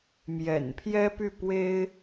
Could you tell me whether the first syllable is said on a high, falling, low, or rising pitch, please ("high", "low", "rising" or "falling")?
low